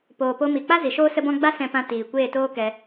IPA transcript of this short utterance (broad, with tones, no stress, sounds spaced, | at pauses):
p oː˨ p o˧ m i˨ k͡p a˦ z i˨ ʃ oː˦ s ə˦ b ɔ̃˦ ɡ͡b a˦ s ɛ̃˧ p ã˧ t iː˨ kʷ eː˦˨ t oː˦ k ɛ˧